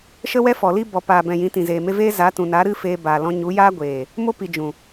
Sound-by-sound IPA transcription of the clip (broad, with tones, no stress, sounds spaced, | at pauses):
ʃ ə˦ w ɛ˦ f ɔ˨ l i˦ b ɔ˨ p aː˨ b ɛ̃˨ j ĩ˨˦ t ĩ˨ z eː˨ m e˦ v eː˦ z a˨˦ t ũ˨ n a˨˦ ɾ ɨ˦ f eː˧ b aː˨ l ɔ̃˧ ɲ u˨˦ j aː˦ ɡʷ eː˨ | m o˦ p i˨ d͡ʒ ũ˨